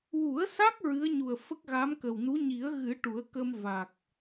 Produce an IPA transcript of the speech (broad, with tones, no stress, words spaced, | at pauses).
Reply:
wu˨˩˦ə̯sa˦˥k̚ ɹɨ˧˥ə̯ɲu˨˩ə̯ fə˦˥k̚ɣa˧˥m kə˨˩wnu˧˥ ɲi˨˩˦ə̯ɣɨ˨˩˦ ʈu˨˩˦ə̯kə˧m va˨˩k̚